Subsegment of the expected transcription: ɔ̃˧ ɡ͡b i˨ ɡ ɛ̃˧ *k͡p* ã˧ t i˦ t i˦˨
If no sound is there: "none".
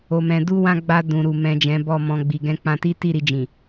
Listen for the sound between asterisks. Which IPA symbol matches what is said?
k͡p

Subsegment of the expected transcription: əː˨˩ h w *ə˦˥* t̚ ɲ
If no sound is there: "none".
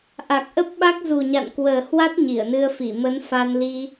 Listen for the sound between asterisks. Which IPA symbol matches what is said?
a˦˥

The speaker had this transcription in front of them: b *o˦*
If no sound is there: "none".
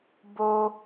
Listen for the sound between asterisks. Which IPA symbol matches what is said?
o˦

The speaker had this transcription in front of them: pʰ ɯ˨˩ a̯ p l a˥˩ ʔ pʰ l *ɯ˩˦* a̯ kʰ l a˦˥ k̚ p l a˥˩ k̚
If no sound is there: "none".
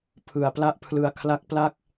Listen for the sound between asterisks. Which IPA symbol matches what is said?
ɯ˧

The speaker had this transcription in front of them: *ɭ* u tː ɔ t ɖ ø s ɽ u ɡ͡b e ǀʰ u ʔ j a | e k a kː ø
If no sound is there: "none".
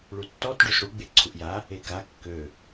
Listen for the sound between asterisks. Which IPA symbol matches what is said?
ɭ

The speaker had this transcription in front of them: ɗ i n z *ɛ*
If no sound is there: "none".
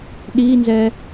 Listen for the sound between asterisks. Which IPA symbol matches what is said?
ɛ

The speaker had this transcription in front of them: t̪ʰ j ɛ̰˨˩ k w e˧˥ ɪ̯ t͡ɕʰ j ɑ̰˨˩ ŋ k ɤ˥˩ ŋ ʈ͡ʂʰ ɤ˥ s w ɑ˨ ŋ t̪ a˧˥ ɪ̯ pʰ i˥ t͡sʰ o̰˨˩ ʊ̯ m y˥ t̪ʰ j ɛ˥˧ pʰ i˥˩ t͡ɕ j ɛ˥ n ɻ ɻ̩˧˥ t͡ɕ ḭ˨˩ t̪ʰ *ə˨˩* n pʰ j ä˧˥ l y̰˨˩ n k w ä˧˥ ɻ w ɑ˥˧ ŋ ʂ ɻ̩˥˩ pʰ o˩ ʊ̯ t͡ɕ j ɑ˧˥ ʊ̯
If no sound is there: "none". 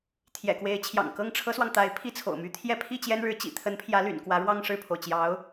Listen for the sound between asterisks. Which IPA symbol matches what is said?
ə˧˥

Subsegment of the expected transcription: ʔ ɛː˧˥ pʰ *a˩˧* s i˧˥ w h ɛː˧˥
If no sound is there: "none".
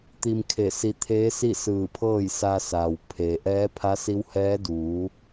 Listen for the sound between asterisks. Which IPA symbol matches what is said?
a˧˥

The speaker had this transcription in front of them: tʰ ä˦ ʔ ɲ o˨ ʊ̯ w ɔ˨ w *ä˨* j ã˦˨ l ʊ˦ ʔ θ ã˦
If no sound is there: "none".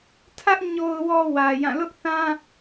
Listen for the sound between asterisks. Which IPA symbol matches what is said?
ä˨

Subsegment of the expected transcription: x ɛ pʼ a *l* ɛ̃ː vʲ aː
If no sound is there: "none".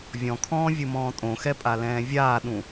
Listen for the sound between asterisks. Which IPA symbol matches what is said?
l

